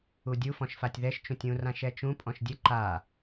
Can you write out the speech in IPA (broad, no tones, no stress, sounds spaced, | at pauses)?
u dʲ u f ɔ̃ ʃ f a tʲ ð ɛ ʃ t͡ʃ ũ tʲ ũ r ã ʃ ɛ t͡ʃ ũ pʼ ɔ̃ ʃ dʲ ɘ ǃ a